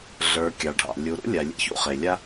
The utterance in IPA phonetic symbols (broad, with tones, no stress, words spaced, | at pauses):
ɮə˞˩ kʲɑ˩ɖʱɑ̰˩ lʲu˩ɾṵ˥ lʲa˩ lʲḛ˥çṵ˥χe˩ lʲa˥